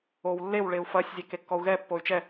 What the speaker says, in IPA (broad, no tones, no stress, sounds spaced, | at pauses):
o w lː e w ɭ e u̯ f ɐ sʲ zʲ ɛ k e kː ɔ u̯ ɣ ɛ pː o y̯ t͡ʃ ɛ